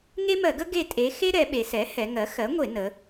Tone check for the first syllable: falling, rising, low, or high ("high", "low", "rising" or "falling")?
high